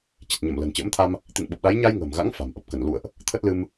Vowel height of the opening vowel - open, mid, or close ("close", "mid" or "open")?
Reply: close